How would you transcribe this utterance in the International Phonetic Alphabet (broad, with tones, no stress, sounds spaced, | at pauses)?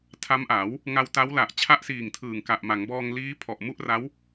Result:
tʰ a˦˥ m ʔ a˩˦ w | ŋ a˧ w t a˦˥ w l a˨˩ ʔ t͡ɕʰ a˥˩ ʔ s iː˨˩ ŋ tʰ ɯː˨˩ ŋ k a˨˩ ʔ m a˩˦ ŋ b ɔː˧ ŋ l iː˦˥ pʰ ɔ˨˩ ʔ m u˥˩ ʔ r a˦˥ w